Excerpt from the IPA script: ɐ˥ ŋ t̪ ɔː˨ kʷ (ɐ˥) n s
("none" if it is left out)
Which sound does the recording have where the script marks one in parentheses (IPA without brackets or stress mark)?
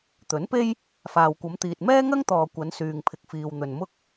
ɐ˨˧